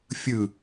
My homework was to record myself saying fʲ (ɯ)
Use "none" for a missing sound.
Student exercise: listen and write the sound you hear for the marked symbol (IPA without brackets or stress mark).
ɯ